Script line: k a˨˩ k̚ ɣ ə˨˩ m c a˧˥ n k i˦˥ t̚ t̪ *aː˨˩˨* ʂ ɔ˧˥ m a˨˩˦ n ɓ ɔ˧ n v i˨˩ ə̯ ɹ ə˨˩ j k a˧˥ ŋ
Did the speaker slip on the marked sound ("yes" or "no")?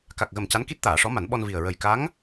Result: no